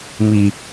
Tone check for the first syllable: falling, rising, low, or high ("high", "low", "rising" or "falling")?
low